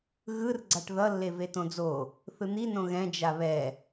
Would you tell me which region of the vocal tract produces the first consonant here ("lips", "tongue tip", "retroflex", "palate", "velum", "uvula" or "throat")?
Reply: velum